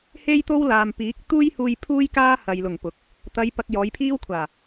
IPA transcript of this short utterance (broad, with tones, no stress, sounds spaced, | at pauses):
h e˥ j t̪ o˥ w l aː˨ m p iː˨˥ k̚ t̪ uː˥ j h uː˧ j pʰ uː˥ j k aː˥ h ɐ˨ j l ʊ˨˩ ŋ p ʊ˨˥ k̚ | t̪ ɐ˨˧ j p ɐ˧ k̚ j ɔː˨˧ j pʰ iː˥ w kʷʰ aː˨˩